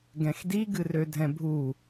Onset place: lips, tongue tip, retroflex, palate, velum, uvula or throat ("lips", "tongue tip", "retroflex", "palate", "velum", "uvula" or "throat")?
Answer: velum